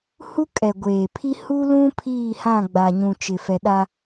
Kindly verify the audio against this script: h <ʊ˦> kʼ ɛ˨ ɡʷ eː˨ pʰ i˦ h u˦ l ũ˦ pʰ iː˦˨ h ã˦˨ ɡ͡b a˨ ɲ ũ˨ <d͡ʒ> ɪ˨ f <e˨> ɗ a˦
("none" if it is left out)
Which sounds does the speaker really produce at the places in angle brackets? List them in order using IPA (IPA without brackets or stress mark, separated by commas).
u˦, t͡ʃ, ɛ˨